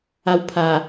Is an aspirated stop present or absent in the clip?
present